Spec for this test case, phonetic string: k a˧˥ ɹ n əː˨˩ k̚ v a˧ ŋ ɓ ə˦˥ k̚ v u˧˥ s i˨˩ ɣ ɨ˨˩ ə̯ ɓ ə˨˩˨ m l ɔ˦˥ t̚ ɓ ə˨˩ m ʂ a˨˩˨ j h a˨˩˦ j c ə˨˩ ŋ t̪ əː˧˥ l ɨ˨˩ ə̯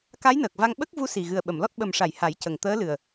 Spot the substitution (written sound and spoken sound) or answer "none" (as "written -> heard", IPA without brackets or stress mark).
ɹ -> j